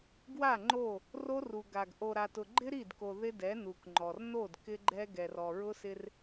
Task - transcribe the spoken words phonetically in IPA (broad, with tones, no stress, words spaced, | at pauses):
ɡwa˦˨ŋ͡ǃo˦˨ | ro˦ru˨ ɡa˨ɡ ʔo˨ɾa˨tʊ˨ɡ͡ǃɪ˦ ɾi˦˨dko˨ ðɪ˦dɛ˨˦nu˨kŋ͡ǃɔ˨r no˦˨d kɪ˦ɡ͡ǃɛ˦ɡɛ˨r ɔ˨ɹʊ˦sɪ˦r